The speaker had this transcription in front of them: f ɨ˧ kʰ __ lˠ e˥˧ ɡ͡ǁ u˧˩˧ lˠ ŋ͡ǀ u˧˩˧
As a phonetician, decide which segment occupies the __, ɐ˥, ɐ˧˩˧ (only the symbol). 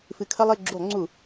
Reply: ɐ˥